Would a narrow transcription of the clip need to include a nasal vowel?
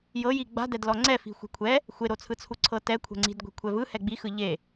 no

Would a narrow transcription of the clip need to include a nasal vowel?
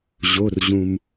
yes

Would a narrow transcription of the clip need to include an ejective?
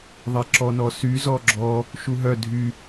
no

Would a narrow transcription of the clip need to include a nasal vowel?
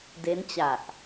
no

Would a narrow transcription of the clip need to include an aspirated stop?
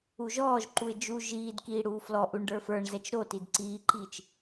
no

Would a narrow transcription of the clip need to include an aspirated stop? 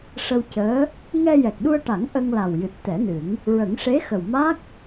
no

